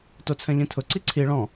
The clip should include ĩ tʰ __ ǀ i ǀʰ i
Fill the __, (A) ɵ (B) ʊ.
B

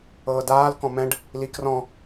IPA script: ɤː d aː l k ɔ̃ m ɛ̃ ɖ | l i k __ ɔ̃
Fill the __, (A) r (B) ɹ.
A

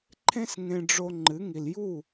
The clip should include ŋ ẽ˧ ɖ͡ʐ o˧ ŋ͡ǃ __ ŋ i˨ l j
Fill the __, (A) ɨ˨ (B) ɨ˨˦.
B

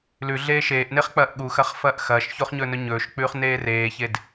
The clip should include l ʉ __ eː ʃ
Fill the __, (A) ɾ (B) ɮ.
B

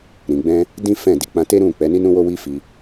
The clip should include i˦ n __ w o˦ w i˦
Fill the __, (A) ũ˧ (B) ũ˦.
B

